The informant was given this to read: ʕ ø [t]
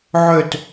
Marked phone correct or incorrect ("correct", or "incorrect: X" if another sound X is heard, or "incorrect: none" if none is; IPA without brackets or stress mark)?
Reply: correct